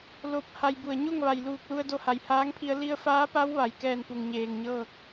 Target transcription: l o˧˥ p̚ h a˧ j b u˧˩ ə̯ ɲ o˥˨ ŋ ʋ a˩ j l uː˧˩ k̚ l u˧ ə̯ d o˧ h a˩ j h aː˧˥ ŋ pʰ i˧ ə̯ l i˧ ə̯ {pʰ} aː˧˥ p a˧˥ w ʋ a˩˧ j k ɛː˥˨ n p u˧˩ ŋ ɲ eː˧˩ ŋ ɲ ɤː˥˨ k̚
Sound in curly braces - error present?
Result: yes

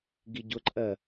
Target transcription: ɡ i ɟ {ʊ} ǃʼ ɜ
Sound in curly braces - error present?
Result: no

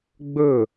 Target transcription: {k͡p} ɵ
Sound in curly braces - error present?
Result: yes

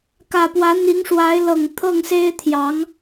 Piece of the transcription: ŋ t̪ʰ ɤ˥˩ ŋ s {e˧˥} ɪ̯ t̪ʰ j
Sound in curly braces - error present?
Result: yes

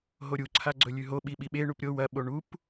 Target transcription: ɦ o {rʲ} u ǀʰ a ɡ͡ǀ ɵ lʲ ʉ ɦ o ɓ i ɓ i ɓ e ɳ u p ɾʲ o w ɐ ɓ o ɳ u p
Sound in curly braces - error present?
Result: yes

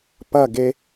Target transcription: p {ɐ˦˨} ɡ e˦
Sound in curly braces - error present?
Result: no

